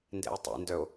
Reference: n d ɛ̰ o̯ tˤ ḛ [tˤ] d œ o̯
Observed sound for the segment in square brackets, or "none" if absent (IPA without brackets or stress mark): n